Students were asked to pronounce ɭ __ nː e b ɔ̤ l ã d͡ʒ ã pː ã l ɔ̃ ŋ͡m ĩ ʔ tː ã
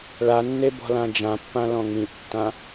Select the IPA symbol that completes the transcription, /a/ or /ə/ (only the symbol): a